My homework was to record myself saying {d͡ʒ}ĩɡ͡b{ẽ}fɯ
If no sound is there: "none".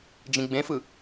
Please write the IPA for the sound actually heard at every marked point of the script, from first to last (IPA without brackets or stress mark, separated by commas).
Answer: d͡ʒ, ẽ